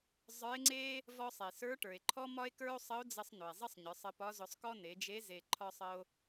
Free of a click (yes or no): no